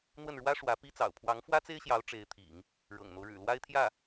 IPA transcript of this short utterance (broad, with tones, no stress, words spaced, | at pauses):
n̪wə˥˩nɻwä˥ ʂwä˧˥pi˥t͡sɑ̰˨˩ʊ̯ pʰwɑ˧˥ŋfwä˥t͡se˥ɪ̯ɕjɑ˧˥ʊ̯ ʈ͡ʂe˧˥ɪ̯t̪ʰḭ˨˩˦ŋ | ɻɤ̰˨˩ŋn̪o˦ʊ̯ɻɻ̩˨˩ lwa˥ɪ̯t̪ʰjä˥˩